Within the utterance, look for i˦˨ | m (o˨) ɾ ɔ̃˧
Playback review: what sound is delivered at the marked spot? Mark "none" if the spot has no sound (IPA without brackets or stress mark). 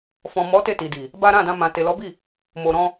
o˨